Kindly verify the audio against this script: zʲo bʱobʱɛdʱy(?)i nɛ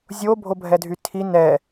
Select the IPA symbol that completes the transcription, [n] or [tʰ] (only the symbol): tʰ